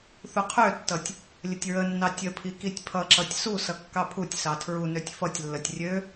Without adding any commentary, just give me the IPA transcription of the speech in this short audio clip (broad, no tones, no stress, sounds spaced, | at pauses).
θ u qʰ ø tː ʌ tʲ | lʲ ə tʲ ɹ ə nː ɑ tʲ ə pʰ i k i tʲ pʰ ʌ ǁ ʌ tʲ s u s ʌ kː ɑ pʰ u tʲ s ɑ tʰ ɹ u n ø tʲ f ʌ tʲ lː ə tʲ rʲ ø